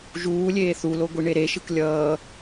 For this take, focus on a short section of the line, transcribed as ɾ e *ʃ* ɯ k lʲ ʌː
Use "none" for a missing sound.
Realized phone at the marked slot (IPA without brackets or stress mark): ʃ